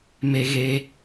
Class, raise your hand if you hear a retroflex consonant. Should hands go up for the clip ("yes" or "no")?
no